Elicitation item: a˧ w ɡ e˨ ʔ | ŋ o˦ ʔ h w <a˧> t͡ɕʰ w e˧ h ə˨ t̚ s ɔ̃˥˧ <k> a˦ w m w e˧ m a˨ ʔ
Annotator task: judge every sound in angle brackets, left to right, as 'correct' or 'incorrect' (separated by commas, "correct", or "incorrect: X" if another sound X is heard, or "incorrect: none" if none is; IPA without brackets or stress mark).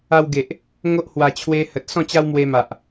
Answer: correct, incorrect: t͡ɕ